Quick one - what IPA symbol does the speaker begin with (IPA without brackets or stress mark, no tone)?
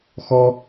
x